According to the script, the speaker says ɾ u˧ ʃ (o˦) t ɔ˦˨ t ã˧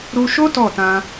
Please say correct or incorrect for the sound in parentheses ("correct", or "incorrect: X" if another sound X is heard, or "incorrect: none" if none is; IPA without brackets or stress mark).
correct